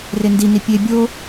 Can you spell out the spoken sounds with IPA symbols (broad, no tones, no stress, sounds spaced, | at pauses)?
r e n d i n i pʲ e bʲ o